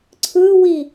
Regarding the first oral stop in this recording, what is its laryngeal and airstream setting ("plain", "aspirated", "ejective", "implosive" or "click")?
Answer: click